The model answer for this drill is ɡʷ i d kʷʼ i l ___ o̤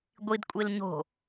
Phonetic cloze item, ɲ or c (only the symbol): ɲ